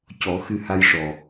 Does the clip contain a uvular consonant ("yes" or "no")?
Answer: no